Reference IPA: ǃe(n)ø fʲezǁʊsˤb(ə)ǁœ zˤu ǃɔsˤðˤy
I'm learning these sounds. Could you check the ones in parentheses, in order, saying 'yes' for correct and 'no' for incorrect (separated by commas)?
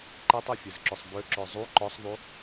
no, no